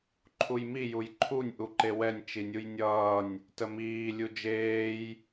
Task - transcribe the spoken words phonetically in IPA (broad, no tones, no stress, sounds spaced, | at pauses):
ǃʰ u j m i j u j ǃʰ u nʲ ʔ u ǃ e w ɛ nʲ t͡ʃ i nʲ u j nʲ ʌː nʲ | t ə m iː lʲ u d͡ʒ eː j